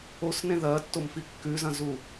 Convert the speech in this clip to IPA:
osnẽ ðɐːtːomfi kːʉzɐ̃zu

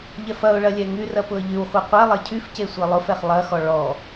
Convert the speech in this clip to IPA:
ʎɛfɐʊ̯ɭɐ lʲɛŋyrɐ pʊə̯ʎywχʷɛ qʷɛ lˠecʰyfce sʷelˠʊfɛχ lˠɐxɔ ɭɔ

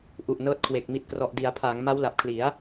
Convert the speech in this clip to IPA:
ʔu˨˩ʔnɤː˦˥t̚kʰwe˨˩k̚ mi˨˩t̚krɔ˨˩ʔdi˩˦a̯pʰaː˩˦ŋ ma˦˥wla˨˩p̚kʰli˩˦a̯

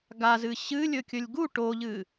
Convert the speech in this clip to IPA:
ɡazɨ ɕɨ lʲɵkʲɵlʲɡu ʈoʎɨ

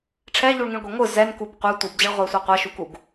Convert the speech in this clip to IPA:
ʈ͡ʂʰɛʎuɭŋĩɭɡʷe ŋʷɯ zɛnkub qʷɛ tʷɯbd͡ʑʌɭʁʷɛsʷe qʷaʃukuɡ

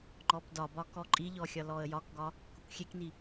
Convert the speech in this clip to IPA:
ŋ͡ǃɔpdɒbɒ kɔǃʼiʎɔ xʲɒlɔə̯jɒkɡɒ | kukʷxʲekni

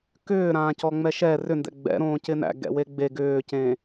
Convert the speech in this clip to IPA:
kʏː ɾãːcɔŋ͡mɛʃɛ rʏndɛ̰ ɡ͡bɛ̰ɾõː cɪnæ̰ ɡɛ̰weɡ͡be ɡʏːcẽ

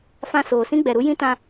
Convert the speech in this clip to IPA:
fã˧ soː˨sĩ˦ɡ͡bɛ˨ ɾu˦jĩ˦tã˧

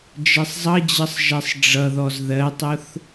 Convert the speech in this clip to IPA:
d͡ʒɛsˤzˤʌd͡ʑʌsˤ ʒɛsˤɖ͡ʐʌðɔz ðɜtˤʊθ

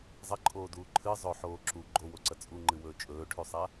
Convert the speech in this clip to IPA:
zˤɐǃʼoːduː ǃʰɨ zˤɵħoː ǁu ɡ͡ǃowoǀɐ t͡sʼuŋ͡ǃɨwɵː t͡ʃʼɵːʈʰʉsˤa

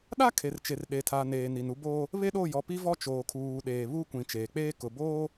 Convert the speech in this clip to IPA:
ɗa˦ kʰe˨rt͡ʃe˨r ɗe˨tʰa˨ neː˨ni˨nu˦boː˦ | βe˦ɗo˦˨jɔ˨ pi˦vɔ˦ t͡ʃoː˨kʰuː˨ɗeː˨ βu˦kʷĩ˨ t͡ʃeː˨k͡peː˦kʊ˨ boː˦

